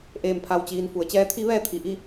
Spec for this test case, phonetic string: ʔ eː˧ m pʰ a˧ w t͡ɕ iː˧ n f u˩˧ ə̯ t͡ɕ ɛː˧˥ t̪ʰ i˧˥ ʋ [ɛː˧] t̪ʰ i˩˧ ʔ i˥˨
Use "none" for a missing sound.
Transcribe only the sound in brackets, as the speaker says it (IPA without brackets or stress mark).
ɛː˧